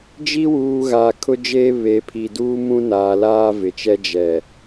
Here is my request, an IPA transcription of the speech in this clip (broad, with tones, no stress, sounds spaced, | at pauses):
d͡ʒ i˦ w uː˨ ɣ aː˨ kʰ ʊ˦ d͡ʒ eː˦ β e˨˦ pʰ i˨ d uː˦ m ũ˦ n aː˨ l aː˦ v ɪ˨ t͡ʃ ɛ˦ d͡ʒ ɛ˨